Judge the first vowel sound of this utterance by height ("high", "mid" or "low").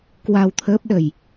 low